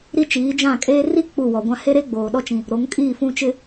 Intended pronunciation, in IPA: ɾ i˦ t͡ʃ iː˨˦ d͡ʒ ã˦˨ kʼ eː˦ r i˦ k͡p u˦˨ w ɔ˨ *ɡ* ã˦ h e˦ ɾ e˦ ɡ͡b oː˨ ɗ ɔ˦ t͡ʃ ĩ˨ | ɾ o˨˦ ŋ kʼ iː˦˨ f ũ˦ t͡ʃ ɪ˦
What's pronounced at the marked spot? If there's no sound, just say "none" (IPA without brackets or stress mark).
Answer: ɡʷ